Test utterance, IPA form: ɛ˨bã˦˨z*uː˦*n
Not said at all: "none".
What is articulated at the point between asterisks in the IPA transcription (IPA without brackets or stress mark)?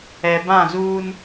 uː˦